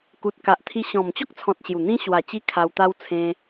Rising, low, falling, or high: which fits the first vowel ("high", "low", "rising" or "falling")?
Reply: low